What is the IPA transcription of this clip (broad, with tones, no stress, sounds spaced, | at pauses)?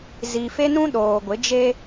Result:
z i˨ f e˦ n ũ˦ ɗ oː˨ ɡʷ ɪ˨˦ d͡ʒ e˦